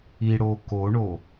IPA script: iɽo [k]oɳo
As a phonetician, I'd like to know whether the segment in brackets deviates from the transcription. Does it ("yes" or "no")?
no